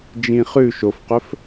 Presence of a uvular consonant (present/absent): present